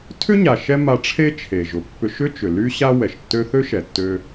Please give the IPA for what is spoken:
tʰʏ˥ɲa˩ ʃɛ˥ma˧ʈ͡ʂʰe˥ t͡ʃʰe˩ ʒʊ˩pːʏ˧ʃʏ˥t͡ʃʏ˩ ly˥ ɕa˥wɛ˩ʃtːø˥ θø˥ʃɛ˩tːø˧

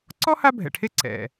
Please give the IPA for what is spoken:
ǀɔ˥ha˦bʱɛ̰˩ʈʰe˦ ǀɛ̰˩

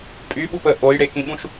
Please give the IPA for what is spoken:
pʼyɓu pə ʔojɽekĩɓũʃ

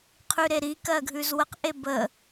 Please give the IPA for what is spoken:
qʰʉɾeɾikɜ ɡʱʉzwəqʔe bə

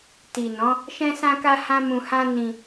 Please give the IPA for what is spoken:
ti˨nɔ̃˨˦ | ʃɛ̃˦sã˦ka˦hã˦ mũ˧hã˦nĩ˧

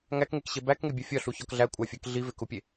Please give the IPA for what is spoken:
ŋækŋekɕe bækŋebʲæ fʲɒɬuçɒk ɮækʷʼæfʲæk ɮivekupʲe

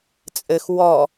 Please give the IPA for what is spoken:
t͡sʼɘx wɔ

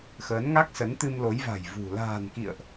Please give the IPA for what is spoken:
xəː˨˦nŋa˦˥k̚sə˨˦nt̪ɨ˧m lo˨˦jva̤˨˩jvṳ˨˩ la̤ː˨˩nkḭ˧˨ə̯ʔ

